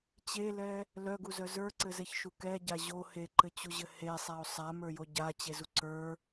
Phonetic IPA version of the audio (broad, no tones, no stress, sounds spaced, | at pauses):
t͡ɕ e l ɛ | l œ ɡ u z œ z ə˞ ǀ ɘ z ɛ ç ʃ u k ɛ ɟ a ʑ o h e ǃ ɘ t͡ɕ u ʑ ɘ h e sˤ a o̯ sˤ a m ə˞ j o ɟ a t͡ɕ e z u ǀ ə˞